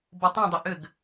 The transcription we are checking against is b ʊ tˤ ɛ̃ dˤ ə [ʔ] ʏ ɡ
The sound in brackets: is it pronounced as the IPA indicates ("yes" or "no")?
yes